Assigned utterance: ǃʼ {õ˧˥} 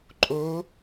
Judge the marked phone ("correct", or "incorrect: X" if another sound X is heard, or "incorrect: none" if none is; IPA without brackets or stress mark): incorrect: o˧˥